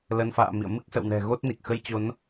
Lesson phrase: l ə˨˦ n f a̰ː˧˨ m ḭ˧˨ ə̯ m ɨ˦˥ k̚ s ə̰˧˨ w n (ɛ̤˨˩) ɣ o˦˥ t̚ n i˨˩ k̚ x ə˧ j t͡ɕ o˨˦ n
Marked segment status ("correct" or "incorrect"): correct